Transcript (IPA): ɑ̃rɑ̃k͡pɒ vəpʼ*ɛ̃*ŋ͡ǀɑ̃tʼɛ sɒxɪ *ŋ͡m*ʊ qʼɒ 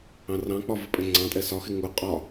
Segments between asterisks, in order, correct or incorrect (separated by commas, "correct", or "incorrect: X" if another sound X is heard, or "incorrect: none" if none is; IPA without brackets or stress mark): correct, incorrect: ŋ